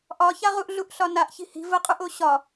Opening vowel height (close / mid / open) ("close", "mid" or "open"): open